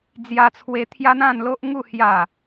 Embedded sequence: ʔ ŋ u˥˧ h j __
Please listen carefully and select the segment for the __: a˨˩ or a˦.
a˨˩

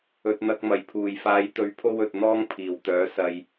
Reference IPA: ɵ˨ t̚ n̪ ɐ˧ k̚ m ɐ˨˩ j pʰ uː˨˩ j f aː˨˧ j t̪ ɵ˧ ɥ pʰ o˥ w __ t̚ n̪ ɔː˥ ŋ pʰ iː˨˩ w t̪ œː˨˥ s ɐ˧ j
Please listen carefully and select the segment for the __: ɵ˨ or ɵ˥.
ɵ˨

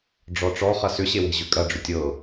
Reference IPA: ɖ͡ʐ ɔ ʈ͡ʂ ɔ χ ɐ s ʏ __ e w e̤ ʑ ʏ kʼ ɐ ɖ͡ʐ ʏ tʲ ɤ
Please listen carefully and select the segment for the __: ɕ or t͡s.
ɕ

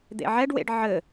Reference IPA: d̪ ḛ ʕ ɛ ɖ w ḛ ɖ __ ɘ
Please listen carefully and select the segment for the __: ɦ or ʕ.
ʕ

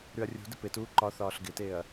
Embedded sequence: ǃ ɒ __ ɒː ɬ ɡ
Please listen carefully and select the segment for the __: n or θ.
θ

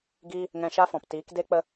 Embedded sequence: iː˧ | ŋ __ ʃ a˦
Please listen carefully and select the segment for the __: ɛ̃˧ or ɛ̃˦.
ɛ̃˧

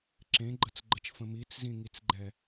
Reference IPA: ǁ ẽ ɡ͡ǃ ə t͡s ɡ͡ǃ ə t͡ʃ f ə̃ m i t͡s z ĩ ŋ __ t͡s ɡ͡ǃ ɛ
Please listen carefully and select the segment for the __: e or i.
i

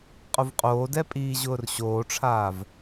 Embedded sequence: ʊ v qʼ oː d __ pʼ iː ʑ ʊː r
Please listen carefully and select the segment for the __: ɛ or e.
ɛ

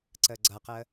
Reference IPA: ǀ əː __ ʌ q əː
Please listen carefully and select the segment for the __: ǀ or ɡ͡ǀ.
ɡ͡ǀ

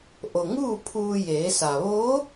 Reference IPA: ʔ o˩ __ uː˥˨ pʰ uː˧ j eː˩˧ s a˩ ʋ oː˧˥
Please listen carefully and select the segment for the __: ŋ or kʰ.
ŋ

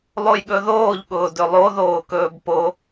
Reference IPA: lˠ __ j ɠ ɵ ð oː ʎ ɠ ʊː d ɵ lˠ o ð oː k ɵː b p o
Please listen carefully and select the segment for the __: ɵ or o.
o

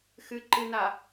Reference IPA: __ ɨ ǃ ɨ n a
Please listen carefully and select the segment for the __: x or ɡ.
x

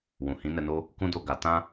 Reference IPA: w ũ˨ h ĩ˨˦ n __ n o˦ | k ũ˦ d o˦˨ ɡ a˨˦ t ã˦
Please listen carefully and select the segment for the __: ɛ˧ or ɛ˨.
ɛ˧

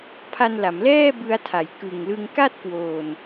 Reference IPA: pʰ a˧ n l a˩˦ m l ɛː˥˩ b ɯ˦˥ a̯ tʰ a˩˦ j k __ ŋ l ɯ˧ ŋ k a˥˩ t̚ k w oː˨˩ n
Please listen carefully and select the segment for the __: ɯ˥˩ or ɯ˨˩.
ɯ˨˩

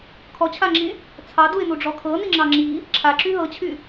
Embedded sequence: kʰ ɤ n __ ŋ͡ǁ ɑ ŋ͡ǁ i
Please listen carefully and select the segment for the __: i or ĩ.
i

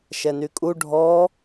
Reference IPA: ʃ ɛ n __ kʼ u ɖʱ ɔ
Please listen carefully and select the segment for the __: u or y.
y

